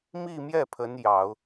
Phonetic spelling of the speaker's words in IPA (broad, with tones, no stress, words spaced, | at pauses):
mi˥˧mjɛ˥˩ pʰə˧˥n jɑ˨˩˦ʊ̯